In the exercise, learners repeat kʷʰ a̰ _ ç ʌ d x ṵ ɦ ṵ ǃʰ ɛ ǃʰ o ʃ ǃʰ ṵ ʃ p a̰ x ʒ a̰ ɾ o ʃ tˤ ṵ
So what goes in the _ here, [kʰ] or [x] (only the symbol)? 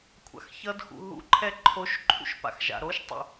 x